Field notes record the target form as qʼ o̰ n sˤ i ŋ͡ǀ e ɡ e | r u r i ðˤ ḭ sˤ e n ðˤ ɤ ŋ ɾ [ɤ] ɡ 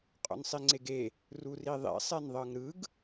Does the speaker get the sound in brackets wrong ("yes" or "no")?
yes